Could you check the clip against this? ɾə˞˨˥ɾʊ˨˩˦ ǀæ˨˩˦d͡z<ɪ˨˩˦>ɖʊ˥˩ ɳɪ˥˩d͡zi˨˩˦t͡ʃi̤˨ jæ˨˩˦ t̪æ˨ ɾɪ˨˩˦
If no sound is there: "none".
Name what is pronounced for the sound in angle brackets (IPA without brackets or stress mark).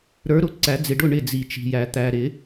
ɪ˨